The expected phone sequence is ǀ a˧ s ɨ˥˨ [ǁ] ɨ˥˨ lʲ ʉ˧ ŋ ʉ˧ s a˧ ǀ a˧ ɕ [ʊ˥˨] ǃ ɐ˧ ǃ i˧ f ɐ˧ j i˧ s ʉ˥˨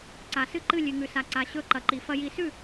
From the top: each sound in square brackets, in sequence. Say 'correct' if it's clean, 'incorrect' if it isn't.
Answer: incorrect, incorrect

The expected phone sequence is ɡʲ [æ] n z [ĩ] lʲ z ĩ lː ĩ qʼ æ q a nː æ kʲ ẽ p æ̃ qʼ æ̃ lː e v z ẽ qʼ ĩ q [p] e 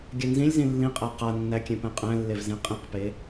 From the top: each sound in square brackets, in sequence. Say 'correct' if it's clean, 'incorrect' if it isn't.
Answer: incorrect, correct, correct

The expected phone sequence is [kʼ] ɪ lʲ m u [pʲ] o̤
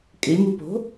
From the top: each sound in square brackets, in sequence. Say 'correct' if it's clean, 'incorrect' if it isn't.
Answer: correct, incorrect

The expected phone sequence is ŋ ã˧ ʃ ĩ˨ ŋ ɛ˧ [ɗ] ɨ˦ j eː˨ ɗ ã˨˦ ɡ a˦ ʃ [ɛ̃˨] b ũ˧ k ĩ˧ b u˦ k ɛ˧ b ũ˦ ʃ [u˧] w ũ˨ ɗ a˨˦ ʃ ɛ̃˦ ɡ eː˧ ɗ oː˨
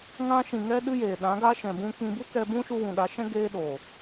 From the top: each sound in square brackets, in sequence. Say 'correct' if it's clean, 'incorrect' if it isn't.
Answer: correct, correct, correct

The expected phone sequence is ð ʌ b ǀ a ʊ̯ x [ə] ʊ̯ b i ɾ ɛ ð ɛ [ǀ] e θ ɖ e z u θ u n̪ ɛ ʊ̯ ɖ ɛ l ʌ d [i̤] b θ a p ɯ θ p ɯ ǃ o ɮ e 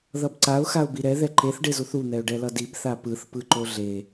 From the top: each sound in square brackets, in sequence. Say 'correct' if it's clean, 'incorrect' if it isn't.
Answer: incorrect, incorrect, incorrect

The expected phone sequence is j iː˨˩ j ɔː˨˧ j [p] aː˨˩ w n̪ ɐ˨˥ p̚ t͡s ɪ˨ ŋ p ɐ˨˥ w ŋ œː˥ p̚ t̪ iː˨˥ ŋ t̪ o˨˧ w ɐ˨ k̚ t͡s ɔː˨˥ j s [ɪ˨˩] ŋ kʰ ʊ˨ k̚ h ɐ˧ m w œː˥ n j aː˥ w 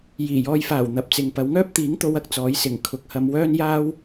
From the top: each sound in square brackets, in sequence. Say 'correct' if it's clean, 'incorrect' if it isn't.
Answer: incorrect, correct

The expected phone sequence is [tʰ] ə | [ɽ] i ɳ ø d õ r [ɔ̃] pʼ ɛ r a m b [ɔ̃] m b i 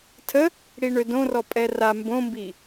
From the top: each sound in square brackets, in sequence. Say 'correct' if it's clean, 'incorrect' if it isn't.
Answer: correct, correct, incorrect, incorrect

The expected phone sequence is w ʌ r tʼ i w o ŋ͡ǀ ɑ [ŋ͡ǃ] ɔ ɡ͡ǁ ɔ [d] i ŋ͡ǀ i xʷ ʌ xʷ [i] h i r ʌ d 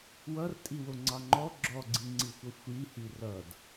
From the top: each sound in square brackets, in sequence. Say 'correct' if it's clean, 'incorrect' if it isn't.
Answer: correct, incorrect, correct

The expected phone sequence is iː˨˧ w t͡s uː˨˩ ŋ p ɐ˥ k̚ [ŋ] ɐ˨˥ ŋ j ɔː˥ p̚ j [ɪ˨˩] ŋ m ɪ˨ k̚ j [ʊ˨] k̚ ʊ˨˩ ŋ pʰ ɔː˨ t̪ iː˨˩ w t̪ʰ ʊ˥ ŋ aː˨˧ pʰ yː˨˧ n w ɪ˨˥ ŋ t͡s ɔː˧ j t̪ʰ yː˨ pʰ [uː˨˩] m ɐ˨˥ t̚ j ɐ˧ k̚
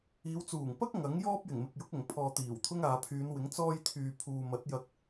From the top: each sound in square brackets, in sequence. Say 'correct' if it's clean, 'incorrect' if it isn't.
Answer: correct, correct, incorrect, incorrect

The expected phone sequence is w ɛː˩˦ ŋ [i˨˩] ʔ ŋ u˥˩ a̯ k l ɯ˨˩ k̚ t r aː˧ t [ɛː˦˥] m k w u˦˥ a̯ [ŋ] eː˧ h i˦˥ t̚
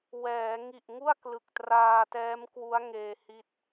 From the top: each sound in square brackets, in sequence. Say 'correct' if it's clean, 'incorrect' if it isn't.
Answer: correct, correct, correct

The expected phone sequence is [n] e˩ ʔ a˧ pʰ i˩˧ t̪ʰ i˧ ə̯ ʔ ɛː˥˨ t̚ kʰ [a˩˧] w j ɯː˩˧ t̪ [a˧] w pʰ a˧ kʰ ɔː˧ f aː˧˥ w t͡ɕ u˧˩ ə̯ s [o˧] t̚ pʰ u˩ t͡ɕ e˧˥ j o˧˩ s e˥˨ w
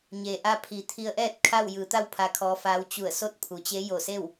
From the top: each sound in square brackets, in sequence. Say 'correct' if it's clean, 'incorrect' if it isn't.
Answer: incorrect, incorrect, correct, incorrect

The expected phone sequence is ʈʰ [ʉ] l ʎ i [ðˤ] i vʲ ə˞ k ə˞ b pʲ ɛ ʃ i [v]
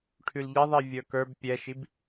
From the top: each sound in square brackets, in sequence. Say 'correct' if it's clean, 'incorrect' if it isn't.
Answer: correct, correct, incorrect

